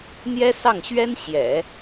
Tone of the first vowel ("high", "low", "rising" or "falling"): high